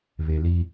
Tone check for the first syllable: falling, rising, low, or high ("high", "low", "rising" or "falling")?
low